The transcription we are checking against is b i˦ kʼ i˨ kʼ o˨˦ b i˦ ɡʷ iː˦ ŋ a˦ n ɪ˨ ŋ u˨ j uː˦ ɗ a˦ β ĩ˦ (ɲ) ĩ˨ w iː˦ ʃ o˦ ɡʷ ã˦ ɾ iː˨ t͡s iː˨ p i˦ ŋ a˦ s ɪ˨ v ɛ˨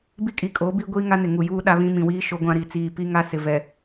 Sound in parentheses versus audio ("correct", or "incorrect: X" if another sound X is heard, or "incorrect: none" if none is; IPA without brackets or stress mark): incorrect: m